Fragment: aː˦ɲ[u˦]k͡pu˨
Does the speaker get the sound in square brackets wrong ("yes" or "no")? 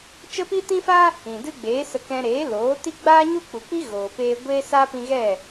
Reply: no